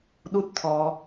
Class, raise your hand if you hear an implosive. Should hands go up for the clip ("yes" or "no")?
yes